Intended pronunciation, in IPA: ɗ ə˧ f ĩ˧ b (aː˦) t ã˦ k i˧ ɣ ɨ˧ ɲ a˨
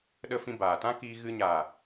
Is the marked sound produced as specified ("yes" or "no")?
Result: no